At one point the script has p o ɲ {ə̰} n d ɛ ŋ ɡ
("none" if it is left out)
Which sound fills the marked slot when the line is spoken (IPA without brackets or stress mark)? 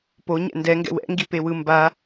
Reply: ɛ̰